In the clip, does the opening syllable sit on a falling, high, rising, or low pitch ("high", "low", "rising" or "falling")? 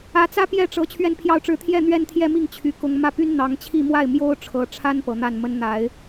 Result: rising